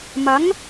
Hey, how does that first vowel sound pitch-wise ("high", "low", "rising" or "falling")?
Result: rising